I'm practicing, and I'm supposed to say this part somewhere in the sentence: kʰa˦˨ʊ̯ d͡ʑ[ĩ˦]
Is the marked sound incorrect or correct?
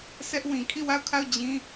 correct